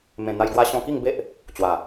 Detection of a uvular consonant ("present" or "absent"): absent